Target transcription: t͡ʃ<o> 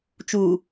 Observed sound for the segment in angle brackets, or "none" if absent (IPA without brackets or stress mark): u